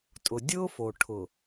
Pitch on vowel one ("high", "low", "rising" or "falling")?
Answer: low